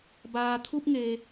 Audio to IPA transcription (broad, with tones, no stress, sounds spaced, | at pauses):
b aː˩ t̪ʰ u˧ p̚ ŋ e˩